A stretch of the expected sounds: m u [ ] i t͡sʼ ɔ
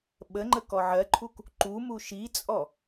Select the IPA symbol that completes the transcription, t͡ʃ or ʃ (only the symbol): ʃ